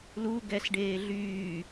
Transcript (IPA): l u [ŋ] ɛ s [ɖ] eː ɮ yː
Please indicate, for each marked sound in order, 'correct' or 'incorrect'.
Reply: incorrect, correct

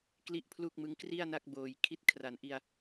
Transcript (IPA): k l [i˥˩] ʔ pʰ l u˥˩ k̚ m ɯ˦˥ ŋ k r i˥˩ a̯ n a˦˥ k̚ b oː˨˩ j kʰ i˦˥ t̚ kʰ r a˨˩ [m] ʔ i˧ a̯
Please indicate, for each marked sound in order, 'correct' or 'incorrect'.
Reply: correct, incorrect

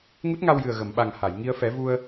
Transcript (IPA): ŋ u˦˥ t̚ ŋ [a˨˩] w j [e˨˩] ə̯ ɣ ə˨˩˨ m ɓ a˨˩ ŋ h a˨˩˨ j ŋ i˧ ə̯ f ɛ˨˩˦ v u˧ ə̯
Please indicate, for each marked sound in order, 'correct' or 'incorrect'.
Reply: incorrect, incorrect

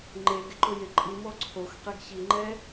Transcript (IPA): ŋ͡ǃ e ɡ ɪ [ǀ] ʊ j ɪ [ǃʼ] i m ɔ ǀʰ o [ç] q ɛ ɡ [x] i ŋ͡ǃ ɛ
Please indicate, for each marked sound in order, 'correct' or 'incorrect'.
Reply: incorrect, correct, incorrect, incorrect

